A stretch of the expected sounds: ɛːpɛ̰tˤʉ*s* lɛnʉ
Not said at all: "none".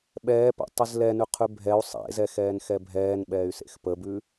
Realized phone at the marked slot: z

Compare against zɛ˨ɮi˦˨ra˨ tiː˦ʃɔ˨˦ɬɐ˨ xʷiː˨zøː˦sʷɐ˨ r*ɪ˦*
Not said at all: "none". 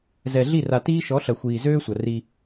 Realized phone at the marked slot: i˦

